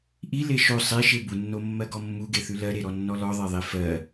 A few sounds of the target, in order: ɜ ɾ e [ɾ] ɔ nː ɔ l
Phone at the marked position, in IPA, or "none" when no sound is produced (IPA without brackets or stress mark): ɾ